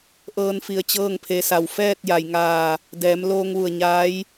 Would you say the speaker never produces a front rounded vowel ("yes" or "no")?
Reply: yes